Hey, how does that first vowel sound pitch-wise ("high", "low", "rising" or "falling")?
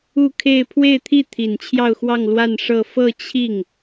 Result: falling